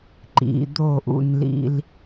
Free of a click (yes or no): no